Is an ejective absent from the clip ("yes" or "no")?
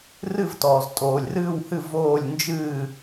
no